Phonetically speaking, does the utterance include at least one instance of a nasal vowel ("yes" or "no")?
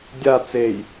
no